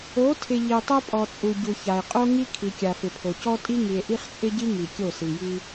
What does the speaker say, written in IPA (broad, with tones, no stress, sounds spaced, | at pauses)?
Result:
o˨˦ tʰ ɪ˨ ʎ i˨ tˤ o˦ pʼ ɔ˨ t͡sʼ u˨ ɟ u˨ ç a˨ e̯ qʼ o˦ ŋ i˦ kʰ i˨ kʲ a˨ f ɪ˨ pʰ o˨ c ɔ˦ tʼ i˦ ŋ i˨ e̯ ʔ i˦ χ t͡sʼ ɪ˦ ɟ i˦ ŋ i˨ kʲ o˦˨ s i˨ j i˦